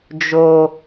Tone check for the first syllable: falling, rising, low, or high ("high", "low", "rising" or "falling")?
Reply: high